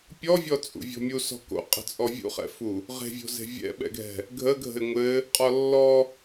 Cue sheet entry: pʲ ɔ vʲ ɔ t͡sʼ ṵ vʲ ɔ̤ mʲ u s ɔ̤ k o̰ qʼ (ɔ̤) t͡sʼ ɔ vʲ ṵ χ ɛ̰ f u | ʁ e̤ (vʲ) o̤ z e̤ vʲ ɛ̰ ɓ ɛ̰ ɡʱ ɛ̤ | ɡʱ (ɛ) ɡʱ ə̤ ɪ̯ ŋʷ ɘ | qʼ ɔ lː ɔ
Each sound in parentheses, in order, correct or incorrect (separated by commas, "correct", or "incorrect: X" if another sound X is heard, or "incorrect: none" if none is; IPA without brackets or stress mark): incorrect: ə̤, correct, incorrect: ə